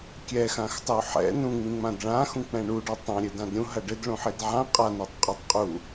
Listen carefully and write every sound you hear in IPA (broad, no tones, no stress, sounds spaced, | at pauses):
kʲ ɛ x ã x tˤ ɘ u̯ ħ ɛ̰ n ũ ŋ͡m ĩ ŋ͡m ã d ɭ ã x ũ k͡p ɛ̃ ɳ u ɖ ɔ tˤ ã ɾʲ ɘ d ã d ɾʲ ũ ɦ ɐ ɖ ɘ d ɭ ũ ħ i d ʕ ã qʼ a n ɐ tˤ qʼ a tˤ qʼ u